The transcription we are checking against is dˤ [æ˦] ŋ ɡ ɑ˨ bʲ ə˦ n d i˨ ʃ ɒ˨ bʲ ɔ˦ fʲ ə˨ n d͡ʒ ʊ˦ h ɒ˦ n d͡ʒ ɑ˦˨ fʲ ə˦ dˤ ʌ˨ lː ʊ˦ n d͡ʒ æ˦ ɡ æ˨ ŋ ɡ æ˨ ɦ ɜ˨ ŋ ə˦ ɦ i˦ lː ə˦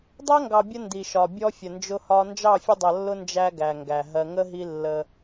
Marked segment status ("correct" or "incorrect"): correct